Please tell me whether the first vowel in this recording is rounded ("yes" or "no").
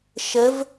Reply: no